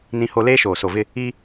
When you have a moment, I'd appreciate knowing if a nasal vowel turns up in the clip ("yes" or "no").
yes